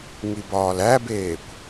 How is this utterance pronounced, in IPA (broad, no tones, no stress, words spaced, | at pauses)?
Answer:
ŋibɒːlæbeːkʷ